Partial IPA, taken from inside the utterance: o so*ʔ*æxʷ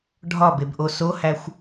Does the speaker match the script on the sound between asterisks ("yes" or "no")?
no